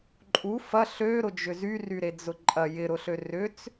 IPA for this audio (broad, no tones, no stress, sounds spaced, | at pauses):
ǃʼ u f ɐ ɬ ø ɾ ʊ d͡ʒ ʏ z y r y ɾ e d͡z ʊ ǃʼ ɐ j ɪ ɾ ʊ ɬ ø r ʏ t͡s